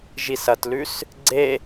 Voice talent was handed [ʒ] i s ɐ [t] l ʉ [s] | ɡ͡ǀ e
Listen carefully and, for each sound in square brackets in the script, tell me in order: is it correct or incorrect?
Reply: correct, correct, correct

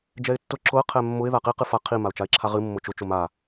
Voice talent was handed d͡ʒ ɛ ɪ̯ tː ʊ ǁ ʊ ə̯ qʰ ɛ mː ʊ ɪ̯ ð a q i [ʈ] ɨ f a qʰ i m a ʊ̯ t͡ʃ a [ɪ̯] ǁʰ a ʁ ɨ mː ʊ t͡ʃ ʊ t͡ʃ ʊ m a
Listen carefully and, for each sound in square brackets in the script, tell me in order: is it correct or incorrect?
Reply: incorrect: q, correct

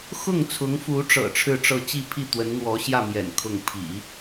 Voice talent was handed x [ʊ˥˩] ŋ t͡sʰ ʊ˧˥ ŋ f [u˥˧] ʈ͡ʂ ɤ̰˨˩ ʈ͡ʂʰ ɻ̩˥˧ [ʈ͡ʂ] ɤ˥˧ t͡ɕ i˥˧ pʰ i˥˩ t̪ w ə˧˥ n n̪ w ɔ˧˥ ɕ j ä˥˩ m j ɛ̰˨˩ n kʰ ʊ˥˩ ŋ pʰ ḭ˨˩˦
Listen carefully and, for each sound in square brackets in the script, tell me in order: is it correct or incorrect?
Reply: correct, incorrect: u˧˥, correct

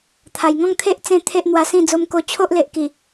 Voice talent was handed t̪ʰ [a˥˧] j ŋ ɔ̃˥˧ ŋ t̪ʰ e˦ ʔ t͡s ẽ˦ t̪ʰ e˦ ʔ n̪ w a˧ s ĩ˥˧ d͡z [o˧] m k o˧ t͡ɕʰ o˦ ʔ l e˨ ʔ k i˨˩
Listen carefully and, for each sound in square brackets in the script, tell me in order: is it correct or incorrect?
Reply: incorrect: a˨˩, correct

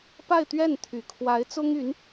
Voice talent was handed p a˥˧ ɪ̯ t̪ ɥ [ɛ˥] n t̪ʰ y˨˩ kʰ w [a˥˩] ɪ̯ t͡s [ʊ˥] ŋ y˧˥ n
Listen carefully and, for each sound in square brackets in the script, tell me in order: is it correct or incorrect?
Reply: incorrect: ɛ˥˩, incorrect: a˧˥, correct

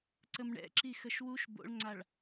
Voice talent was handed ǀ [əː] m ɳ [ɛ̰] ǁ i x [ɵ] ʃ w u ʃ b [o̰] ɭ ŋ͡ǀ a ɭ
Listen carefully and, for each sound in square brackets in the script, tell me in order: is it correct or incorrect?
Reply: incorrect: ə, correct, incorrect: ə, correct

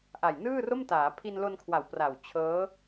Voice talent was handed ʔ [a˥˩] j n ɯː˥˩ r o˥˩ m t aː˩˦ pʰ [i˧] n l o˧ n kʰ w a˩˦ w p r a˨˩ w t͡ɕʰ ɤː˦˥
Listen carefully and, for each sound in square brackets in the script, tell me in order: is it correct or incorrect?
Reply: incorrect: a˨˩, correct

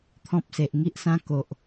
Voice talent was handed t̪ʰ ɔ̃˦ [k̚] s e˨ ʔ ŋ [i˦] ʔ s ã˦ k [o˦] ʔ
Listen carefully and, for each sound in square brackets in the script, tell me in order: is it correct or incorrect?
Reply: incorrect: p̚, correct, incorrect: o˨

